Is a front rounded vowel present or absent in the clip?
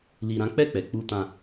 absent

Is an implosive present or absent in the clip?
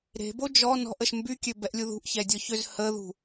absent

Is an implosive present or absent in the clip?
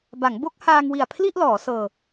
absent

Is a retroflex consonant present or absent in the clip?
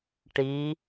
present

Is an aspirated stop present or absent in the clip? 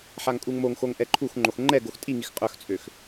present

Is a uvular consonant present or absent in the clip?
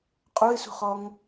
present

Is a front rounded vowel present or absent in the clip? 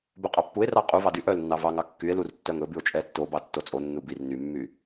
present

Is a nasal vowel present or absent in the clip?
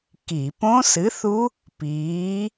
present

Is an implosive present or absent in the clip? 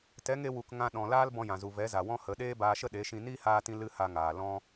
present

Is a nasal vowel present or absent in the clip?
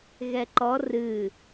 absent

